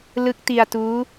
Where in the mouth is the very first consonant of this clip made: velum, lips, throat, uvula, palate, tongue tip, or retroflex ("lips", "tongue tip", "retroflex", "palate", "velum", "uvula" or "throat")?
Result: tongue tip